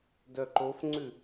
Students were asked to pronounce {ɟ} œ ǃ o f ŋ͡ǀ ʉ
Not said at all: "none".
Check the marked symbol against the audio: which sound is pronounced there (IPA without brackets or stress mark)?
d